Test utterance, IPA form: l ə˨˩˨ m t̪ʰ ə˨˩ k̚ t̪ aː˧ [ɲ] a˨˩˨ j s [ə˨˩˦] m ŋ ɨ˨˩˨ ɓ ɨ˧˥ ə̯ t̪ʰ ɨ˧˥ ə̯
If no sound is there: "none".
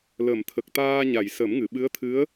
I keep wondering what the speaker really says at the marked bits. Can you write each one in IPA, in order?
ɲ, ə˨˩˦

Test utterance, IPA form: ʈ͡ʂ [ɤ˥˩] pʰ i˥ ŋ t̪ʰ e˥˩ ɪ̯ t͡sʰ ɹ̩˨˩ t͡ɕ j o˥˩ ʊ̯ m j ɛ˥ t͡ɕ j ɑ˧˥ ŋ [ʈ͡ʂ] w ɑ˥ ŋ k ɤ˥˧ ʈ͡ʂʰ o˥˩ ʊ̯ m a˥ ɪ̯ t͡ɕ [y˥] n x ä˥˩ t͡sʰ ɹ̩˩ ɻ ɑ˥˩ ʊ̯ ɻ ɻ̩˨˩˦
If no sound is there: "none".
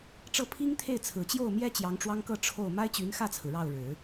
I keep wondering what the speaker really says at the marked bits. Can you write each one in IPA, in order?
ɤ˥˩, ʈ͡ʂ, y˧˥

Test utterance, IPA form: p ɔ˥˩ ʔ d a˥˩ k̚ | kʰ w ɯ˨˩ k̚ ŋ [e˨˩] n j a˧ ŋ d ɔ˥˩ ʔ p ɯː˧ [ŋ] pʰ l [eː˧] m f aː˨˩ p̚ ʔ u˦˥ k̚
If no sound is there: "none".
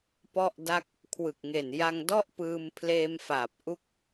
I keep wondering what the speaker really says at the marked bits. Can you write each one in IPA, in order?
e˨˩, m, eː˧

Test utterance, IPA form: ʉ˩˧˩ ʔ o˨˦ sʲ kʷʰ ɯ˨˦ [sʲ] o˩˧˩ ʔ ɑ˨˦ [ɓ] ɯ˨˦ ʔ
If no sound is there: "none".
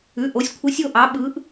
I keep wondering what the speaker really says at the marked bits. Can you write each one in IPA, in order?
sʲ, ɓ

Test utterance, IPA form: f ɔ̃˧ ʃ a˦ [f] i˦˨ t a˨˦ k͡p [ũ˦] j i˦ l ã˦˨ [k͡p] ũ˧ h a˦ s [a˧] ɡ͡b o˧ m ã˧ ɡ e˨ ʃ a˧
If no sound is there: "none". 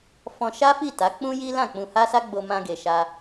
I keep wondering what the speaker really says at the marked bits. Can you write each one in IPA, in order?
f, ũ˦, k͡p, a˦

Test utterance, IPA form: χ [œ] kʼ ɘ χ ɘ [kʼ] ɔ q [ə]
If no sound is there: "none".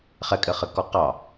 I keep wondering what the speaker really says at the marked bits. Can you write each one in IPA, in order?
ɛ, k, ɑ

